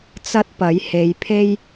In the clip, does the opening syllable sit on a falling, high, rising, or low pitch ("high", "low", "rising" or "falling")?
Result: high